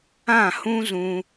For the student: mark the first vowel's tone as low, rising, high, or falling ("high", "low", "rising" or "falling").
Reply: falling